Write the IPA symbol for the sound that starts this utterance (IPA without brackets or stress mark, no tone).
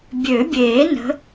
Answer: bʲ